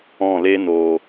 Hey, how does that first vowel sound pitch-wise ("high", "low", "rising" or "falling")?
falling